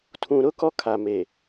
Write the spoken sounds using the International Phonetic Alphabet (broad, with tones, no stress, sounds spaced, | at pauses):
tʰ ũ˨ ɾ ʊ˦ k ɔ˦ kʰ a˨ m e˨